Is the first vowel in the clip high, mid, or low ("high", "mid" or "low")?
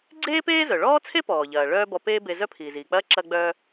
mid